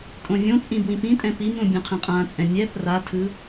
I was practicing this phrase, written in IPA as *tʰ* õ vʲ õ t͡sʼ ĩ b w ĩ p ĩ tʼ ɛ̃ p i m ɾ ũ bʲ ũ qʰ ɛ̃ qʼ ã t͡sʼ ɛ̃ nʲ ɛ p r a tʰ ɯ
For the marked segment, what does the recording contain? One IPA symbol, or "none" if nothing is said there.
tʼ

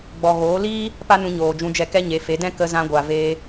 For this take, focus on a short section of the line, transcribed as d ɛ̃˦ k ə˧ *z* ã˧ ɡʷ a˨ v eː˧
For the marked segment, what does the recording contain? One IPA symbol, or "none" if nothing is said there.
z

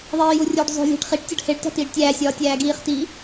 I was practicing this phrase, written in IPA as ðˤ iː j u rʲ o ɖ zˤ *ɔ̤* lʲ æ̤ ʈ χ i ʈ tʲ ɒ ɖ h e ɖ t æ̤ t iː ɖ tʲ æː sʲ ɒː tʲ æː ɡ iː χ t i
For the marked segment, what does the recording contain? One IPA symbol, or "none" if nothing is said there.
o̤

